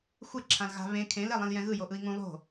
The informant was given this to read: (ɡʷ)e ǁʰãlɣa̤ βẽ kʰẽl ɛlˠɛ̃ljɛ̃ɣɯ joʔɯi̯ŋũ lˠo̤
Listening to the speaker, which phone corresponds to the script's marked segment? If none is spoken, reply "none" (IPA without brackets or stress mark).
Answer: xʷ